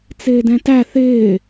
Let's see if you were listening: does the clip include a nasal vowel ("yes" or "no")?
yes